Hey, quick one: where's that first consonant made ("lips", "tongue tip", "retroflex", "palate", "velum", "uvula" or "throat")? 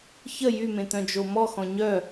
palate